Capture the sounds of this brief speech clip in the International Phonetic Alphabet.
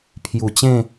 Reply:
pʰ j u˨˩ t͡ɕ ẽ˥˧

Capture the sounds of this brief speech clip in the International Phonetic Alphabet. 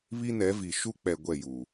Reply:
β i˦ n ɛ˨˦ v i˨ ʃ u˦ k͡p ɛ˨ ɡʷ ɛ˦˨ j uː˨

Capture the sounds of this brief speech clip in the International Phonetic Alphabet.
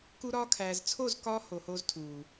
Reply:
k u˧ ɾ ɒː˧ kʰ æː˨ z t͡sʰ o˦˨ z k ɒː˦ h o˨ h oː˧ z tʰ uː˨

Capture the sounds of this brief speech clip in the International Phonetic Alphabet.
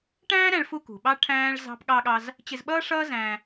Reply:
ʈ æ̃ː˥ ɾ æ̃˧ ɭ f u˧ k ṳ˩ ɓ ɑ˥ ʈʰ æ̃ː˥ ɭ z ɑ̤˥ p ɠ ɑ˥ ɠ ɑ˥ z | t͡ɕ ɪ˧ z ɓ ʌː˥ ʂ ʌː˥ z æ̃˧

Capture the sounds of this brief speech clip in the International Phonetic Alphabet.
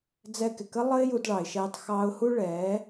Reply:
d͡z ɛ˧ k ɪ˨ k ə˦ lˠ ə˦ ɪ̯ j u˧ d ɭ ɑ˨ ɪ̯ ʃ ɛː˧ tˤ x ɑː˧ ʊ̯ h u˦ ɭ ɛː˨˦

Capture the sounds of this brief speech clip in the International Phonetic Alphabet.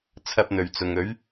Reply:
t͡sʰ ɐ˥ p̚ n̪ ɵ˨ ɥ t͡s ʊ˨ ŋ ɵ˨˥ ɥ

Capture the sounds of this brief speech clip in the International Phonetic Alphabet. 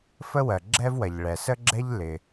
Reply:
f ə˥ w ɜ˩ ɡ͡ǁ ɛ˥ v w ɐ˩ ʎ ɭ ɛ˩ s ə˥ ɡ͡ǁ ɛ˥ ʎ l ɪ˩

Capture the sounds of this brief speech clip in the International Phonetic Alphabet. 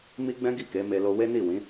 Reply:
m i˦ ɡ͡b ɛ̃˦ ɡ i˦˨ k e˨˦ m e˧ l o˧ w e˦ n i˦˨ w ĩ˨˦

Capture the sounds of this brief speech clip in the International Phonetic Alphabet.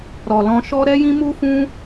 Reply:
ɾ ɔ˨ l ɔ̃˧ ʃ ɔ˦ ɾ ɛ˦ j ĩ˦ m u˦ f ũ˦

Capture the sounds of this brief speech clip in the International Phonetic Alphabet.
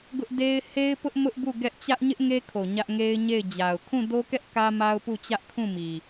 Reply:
ɡ ʊ˦ ʔ d e˦ ɪ̯ h e˦ ɪ̯ p ʊ˦ ʔ m ʊ˦ ʔ b u˦˨ ɡ ɛ˦ ʔ t͡ɕ ä˦ ʔ ɲ ɪ˦ ʔ ŋ e˦ kʰ o˨ ɲ ä˦ ʔ ŋ e˦ ɪ̯ ɲ e˦˨ ɪ̯ d͡ʑ a˨ ʊ̯ kʰ ũ˦˨ d o˦ k ɛ˦ ʔ k ä˦ m a˦ ʊ̯ p u˦˨ t͡ɕ ä˦ ʔ kʰ ũ˦˨ m i˨

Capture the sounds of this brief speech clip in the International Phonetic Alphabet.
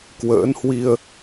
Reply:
k w ə̰ː˧˥ n h w i˧ ə̯

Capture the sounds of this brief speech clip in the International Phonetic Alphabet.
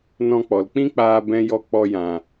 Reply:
n ɔ̃˧ k͡p ɔ˨ l k͡p ĩ˦ k͡p aː˧ b ɛ̃˦ j ɔ˦ k͡p ɔ˧ j ã˨

